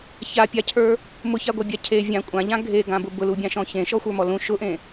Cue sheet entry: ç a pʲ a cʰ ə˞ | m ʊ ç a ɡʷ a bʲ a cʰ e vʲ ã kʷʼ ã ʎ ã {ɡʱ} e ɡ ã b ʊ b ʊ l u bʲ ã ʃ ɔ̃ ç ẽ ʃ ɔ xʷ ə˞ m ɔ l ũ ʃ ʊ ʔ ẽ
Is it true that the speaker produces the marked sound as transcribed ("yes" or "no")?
yes